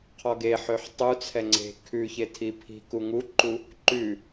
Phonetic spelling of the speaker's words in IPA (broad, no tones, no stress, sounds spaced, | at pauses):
qʰ ɔ ɡ e ħ ø ħ tˤ u t͡sʰ ɛ ŋ͡ǀ e̤ kʰ ʉ ç e tʰ i pʰ i̤ k u ŋ u ǃ u | ǃ ʉ